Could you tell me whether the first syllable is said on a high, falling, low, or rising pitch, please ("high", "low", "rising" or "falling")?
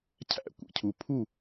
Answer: falling